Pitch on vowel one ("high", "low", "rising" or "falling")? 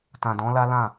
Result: low